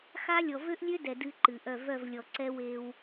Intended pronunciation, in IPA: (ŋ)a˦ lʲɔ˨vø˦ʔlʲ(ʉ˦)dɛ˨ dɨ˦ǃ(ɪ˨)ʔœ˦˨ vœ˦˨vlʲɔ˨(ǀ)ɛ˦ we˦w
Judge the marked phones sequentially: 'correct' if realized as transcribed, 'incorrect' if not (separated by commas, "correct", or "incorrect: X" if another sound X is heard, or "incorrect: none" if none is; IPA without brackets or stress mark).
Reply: incorrect: x, incorrect: ø˦, incorrect: ɨ˨, correct